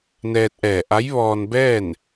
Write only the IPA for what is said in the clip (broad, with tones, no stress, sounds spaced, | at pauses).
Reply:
n ɛː˧ t̚ ʔ ɛː˧˩ ʔ a˧˥ j ʋ ɔː˧ n b ɛː˥˨ n